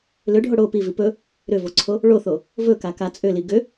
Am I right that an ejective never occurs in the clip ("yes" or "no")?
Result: no